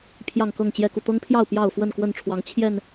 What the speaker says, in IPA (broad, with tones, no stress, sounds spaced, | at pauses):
pʰ j ɑ˥˨ ŋ k ɤ˥˨ ŋ t͡ɕ j ɛ˦ k u˨ t̪ ɤ˦ ŋ pʰ j ɑ˥˨ ʊ̯ p j ɑ˥˨ ʊ̯ f w ə˥˨ n k w ə˥˨ n ʈ͡ʂʰ w ɑ˨˦ ŋ t͡ɕʰ j ɛ˥˨ n